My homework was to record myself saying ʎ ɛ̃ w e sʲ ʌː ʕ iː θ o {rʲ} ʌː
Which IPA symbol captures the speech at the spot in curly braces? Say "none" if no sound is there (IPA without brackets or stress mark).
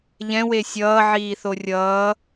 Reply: rʲ